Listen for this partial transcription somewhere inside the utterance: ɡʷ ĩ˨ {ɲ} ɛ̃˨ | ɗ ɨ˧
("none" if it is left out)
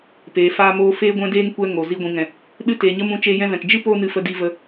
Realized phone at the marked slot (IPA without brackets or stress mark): ŋ